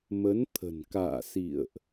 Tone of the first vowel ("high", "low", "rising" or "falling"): rising